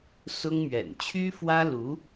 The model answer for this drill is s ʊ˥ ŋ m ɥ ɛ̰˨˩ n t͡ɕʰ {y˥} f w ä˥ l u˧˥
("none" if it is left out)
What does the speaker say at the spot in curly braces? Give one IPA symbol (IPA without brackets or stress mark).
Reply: y˥